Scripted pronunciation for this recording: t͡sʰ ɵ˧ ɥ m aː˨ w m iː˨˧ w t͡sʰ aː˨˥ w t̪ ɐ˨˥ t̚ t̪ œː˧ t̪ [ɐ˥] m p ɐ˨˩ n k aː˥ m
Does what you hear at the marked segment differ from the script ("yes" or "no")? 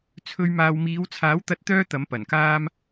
yes